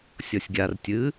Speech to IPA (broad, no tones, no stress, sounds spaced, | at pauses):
sʲ ɔ sʲ ɡʲ a r tʲ ɨ